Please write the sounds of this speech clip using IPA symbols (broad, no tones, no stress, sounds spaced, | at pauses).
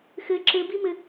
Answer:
x ɘ ǁ ɘ b i m ɘ